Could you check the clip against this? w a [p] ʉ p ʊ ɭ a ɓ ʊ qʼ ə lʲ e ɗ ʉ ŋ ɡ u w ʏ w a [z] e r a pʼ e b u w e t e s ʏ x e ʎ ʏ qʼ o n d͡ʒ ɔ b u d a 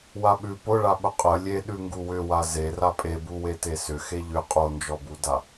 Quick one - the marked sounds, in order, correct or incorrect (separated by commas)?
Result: incorrect, correct